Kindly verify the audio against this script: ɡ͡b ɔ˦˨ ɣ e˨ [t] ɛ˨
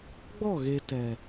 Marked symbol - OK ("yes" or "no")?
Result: yes